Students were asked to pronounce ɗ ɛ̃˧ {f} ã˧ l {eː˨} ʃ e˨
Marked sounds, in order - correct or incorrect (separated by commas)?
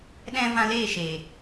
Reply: incorrect, incorrect